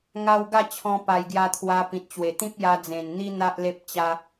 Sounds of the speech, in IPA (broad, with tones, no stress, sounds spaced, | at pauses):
ŋ a˧ w ɡ a˥˧ t͡ɕʰ ɔ̃˧ p a˨˩ j ɡ j a˧ t̪ʰ w a˧ p ĩ˨ t̚ t͡ɕ w e˨˩ t̪ ĩ˦ p̚ j a˧ d͡z ẽ˨˩ n n̪ i˦ n̪ a˦ ʔ l e˦ p̚ t͡ɕ a˦